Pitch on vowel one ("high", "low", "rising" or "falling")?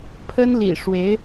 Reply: high